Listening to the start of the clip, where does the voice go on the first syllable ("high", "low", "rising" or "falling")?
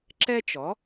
high